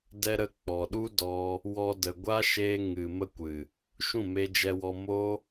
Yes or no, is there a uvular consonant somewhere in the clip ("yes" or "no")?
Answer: no